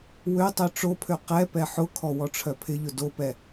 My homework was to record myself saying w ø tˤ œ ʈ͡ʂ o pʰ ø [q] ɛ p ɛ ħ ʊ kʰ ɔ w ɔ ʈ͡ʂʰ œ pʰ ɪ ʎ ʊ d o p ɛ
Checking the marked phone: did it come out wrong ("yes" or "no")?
no